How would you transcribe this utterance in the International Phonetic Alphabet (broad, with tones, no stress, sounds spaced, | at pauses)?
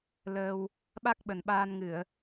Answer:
l əː˧ w | ɓ a˦˥ k̚ ɓ ə˨˩ n ɓ aː˧ n ŋ ɨ˧˩˨ ə̯